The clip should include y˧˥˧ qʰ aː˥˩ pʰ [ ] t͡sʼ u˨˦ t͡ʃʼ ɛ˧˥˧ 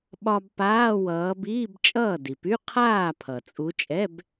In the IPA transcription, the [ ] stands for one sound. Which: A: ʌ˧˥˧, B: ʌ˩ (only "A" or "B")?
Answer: B